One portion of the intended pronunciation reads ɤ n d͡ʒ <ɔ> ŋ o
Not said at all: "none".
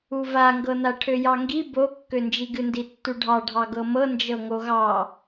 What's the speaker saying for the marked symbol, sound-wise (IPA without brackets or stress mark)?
ɤ